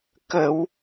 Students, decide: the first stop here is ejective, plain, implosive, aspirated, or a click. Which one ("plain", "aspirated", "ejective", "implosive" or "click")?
plain